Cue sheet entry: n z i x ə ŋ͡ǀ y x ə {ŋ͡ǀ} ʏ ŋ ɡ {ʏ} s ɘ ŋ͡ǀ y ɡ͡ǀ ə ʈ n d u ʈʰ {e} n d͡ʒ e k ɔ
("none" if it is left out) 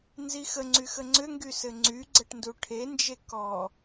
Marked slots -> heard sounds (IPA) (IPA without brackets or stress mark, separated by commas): ŋ͡ǀ, y, e